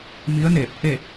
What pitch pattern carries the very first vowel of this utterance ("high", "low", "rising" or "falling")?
rising